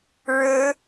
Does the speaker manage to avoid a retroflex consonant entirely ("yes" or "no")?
no